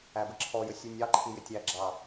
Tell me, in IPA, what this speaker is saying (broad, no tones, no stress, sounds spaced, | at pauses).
æ b ə ǁʰ ɔ j ə sʲ u nʲ ɑ ǃʰ i j ɪ tʲ æ ɡ͡ǁ ɑ